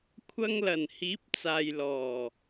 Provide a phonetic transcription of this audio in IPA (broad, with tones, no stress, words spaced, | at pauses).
kʷʰɐ˧ŋlɐ˨˩n hiː˨˥p̚t͡saː˨jlɔː˨˩